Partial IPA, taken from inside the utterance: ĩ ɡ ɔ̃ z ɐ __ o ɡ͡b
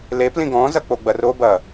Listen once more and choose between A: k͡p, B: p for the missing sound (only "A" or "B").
A